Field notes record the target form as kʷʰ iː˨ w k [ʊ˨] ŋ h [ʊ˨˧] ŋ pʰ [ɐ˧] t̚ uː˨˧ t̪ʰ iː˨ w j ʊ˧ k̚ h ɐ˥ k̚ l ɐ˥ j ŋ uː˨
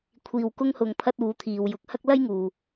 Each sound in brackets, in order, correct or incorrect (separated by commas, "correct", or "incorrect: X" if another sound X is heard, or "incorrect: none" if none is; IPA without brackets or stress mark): incorrect: ʊ˧, incorrect: ʊ˨, correct